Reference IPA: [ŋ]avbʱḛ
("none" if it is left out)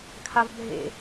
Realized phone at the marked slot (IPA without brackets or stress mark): kʰ